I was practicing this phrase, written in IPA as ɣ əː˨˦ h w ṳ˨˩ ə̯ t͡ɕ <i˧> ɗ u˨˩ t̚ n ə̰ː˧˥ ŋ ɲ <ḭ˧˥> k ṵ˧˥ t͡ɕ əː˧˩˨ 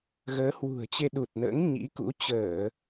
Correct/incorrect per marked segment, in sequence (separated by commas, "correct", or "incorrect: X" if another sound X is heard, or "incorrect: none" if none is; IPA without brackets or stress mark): incorrect: e˧, correct